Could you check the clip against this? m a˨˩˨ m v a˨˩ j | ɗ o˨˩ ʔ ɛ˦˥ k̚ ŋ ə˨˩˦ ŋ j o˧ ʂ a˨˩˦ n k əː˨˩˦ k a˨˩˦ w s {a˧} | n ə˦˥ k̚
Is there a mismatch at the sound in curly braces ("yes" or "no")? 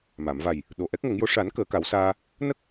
yes